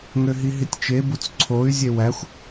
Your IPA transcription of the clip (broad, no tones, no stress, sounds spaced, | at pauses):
ŋ ø ɦ i ɦ i tʲ t͡ʃ e b u t͡s ǀʰ o y̯ zʲ e w æ xʷ